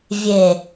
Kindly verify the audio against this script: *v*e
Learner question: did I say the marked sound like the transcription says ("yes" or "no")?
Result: no